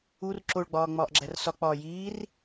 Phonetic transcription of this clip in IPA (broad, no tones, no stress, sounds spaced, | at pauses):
u r ǁ o ɭ ɡ͡b ɒː ŋ͡m ɒː ʔ ɡ͡ǁ æ r s ɒ k͡p ɒː j iː r